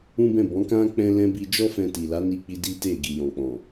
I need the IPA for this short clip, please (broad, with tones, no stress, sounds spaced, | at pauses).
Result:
ũ˦ b ɛ̃˦˨ b ɔ̃˨˦ k ã˦ k͡p ɛ̃˦ l ɛ̃˦ b i˧ d͡ʒ ɔ˦ f ɛ̃˧ t i˨ l a˨˦ n i˧ k͡p i˧ d i˦ t e˦˨ ɡ i˨ j ɔ̃˨ k͡p ɔ̃˨